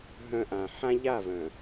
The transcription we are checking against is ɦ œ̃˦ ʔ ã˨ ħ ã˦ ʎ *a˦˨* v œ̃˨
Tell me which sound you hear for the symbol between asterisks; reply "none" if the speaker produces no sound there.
a˦˨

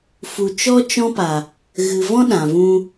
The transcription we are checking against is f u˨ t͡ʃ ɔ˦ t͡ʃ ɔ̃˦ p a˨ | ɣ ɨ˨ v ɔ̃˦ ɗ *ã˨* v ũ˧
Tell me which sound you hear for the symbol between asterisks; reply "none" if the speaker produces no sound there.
ã˨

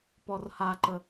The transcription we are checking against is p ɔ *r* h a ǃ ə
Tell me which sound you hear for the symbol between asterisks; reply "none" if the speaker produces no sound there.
r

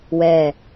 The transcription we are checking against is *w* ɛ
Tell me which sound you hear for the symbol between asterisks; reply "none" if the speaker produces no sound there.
w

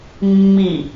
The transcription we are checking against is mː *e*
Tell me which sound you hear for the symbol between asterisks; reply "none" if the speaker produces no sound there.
i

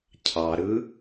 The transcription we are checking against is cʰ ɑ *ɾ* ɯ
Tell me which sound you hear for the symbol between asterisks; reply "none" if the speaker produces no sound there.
ɾ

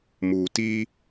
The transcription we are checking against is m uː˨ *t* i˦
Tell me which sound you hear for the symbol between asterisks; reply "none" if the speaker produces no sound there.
t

